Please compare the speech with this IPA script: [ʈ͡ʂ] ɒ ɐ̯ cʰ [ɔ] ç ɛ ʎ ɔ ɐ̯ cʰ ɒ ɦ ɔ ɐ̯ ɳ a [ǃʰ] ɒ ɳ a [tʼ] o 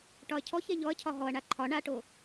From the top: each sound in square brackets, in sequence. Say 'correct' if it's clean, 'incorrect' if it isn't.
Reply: incorrect: ʈ, correct, correct, incorrect: ʈ

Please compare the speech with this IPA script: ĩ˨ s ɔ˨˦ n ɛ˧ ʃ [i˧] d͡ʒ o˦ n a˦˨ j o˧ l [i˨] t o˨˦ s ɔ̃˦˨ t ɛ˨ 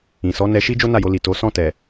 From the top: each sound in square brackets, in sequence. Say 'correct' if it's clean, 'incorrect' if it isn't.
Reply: incorrect: i˦, correct

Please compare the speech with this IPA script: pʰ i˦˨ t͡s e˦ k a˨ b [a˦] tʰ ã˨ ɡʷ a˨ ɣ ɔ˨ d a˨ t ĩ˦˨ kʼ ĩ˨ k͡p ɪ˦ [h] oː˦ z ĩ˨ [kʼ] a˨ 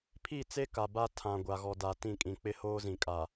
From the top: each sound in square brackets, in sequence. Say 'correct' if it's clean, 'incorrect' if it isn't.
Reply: correct, correct, correct

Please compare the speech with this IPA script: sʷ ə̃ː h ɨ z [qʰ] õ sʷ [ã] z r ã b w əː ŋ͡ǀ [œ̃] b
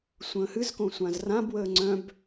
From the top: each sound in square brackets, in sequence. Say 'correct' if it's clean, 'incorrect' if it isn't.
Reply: incorrect: k, correct, correct

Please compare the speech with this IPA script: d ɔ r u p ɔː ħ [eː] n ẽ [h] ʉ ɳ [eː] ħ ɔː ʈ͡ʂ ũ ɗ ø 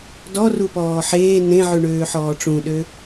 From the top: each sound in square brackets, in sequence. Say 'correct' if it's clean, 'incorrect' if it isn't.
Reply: correct, incorrect: ʕ, incorrect: øː

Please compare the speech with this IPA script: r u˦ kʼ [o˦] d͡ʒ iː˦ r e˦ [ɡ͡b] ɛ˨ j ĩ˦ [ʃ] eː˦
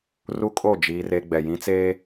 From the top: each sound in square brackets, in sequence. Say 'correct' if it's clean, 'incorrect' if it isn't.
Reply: incorrect: o˦˨, correct, incorrect: t͡s

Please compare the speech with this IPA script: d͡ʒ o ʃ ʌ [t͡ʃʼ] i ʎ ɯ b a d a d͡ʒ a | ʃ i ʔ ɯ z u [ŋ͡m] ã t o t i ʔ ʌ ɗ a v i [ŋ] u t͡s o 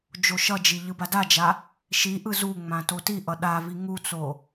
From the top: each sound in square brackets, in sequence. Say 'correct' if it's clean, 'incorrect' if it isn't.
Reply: incorrect: d͡ʒ, correct, correct

